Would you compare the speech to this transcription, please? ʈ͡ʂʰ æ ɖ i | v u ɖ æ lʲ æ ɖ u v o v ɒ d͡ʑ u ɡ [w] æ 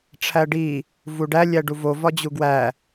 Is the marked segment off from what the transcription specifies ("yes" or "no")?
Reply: no